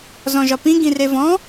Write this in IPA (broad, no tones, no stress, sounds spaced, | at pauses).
z ɔ̃ ʒ ɒ p ĩ ɡ ĩ r e v ɔ̃